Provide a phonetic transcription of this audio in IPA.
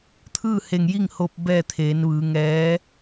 t̪ʰ ɯː˥˨ h e˧˩ ŋ j i˥˨ ŋ h o˧ p̚ b ɛː˥˨ t̪ʰ eː˩˧ n ʋ ɯː˩˧ ŋ ɛː˧˥

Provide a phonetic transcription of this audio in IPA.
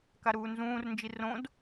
k a ɾ uː n z ũː r n d͡ʒ i r õ d

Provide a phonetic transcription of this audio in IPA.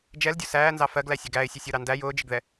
d͡ʒ ɛ l dʲ ʊ s æː n z ɑ f ɜ ɡ l æ sʲ ə ɡ æ ɪ̯ sʲ ə sʲ ʊ ɾ ɑ n d æ j ʊː d͡ʒ ɪ ɡ ð ɛ

